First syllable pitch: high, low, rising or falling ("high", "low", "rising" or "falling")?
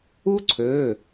high